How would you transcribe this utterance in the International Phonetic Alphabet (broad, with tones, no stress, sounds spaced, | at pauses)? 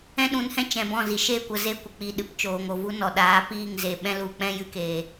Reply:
ɛ̃˦ ɗ ũ˨˦ n h ɛ̃˦ t͡ʃ ɛ̃˨ b ɔ̃˦˨ z i˨ ʃ e˦˨ kʷ ə˨ z e˦˨ kʷ ə˨ k͡p i˨ ɗ ɨ˨ p t͡ʃ oː˨ ŋ o˨ v u˦ n ɔ˨ ɗ aː˨˦ p iː˦˨ ŋ z e˨ ɓ ɛ̃˦ l u˨ k͡p ɛ̃˦ j ɨ˦ k eː˧